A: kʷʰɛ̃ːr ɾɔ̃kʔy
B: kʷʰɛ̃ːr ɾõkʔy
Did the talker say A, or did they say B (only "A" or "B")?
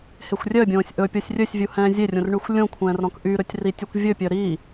A